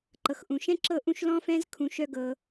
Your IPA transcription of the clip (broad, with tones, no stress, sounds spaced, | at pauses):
ǃ ɤ˨ x ʔ ũ˨ ʃ ɛ̃˦ ǁ ɤ˦˨ ʔ ũ˦˨ ʃ l ɔ̃˦ f ɛ̃˦ z kʰ ũ˧ ʃ œ˦ ɡ ɤ˧